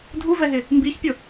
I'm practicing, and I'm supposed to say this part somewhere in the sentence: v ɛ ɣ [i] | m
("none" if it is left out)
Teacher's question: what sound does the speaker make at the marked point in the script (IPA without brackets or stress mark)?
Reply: ɪ